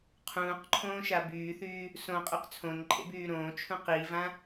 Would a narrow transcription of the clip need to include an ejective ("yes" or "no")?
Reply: yes